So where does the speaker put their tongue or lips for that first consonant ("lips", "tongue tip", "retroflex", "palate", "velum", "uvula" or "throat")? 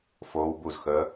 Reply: lips